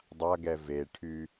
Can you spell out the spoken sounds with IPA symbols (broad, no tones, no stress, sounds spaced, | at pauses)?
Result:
dˤ a ɡ ɛ v e ʈʰ y